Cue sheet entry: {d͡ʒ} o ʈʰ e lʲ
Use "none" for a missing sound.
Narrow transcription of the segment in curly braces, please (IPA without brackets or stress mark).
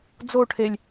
d͡z